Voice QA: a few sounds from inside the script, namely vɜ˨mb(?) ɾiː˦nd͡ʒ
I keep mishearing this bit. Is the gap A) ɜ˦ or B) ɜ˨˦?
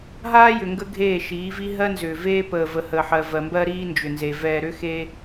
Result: A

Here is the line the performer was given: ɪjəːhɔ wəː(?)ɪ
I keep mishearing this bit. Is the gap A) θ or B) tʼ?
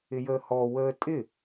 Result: B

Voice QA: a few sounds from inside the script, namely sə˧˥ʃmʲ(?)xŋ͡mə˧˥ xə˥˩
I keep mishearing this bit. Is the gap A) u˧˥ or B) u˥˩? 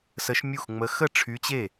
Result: B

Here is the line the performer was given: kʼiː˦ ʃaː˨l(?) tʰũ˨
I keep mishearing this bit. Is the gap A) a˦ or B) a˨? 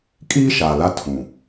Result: A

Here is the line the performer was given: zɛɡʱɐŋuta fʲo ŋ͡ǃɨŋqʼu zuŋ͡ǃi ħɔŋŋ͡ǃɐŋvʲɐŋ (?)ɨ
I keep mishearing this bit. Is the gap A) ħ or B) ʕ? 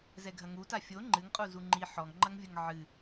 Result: B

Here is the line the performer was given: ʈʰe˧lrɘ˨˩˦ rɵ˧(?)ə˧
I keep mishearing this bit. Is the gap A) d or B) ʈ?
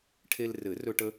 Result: B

